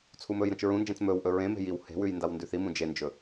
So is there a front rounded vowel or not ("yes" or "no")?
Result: no